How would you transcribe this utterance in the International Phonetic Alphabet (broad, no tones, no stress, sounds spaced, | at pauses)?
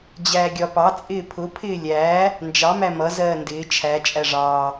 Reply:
d͡ʑ æː ɡʲ ɒ p ɑ t͡sʼ ɪː pʰ ʊ pʰ ɪː lʲ æː | n d͡ʒ ɑ m æ m ʌ z ɜː n d ɪː t͡ʃʰ æ t͡ʃʼ æ ʐ ɑː